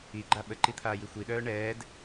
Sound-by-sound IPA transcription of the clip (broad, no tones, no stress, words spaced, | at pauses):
iɡ͡ǃa ɓəǃit̪ʰaːji xʷiɗœː ɳɛːd